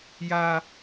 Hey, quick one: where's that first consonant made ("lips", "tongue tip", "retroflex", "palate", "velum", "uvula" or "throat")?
palate